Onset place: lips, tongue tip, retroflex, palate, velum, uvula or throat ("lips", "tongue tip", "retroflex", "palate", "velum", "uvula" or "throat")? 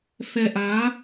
lips